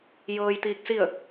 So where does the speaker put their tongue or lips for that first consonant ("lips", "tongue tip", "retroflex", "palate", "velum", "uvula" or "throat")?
palate